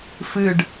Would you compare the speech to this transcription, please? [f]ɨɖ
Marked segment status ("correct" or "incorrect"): correct